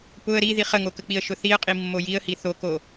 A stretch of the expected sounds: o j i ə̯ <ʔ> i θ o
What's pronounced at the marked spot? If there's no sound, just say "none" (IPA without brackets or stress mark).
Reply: h